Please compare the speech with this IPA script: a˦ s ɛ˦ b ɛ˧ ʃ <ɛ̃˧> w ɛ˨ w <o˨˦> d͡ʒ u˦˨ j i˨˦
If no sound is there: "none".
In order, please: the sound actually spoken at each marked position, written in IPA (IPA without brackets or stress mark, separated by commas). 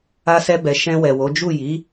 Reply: ɛ̃˧, o˨˦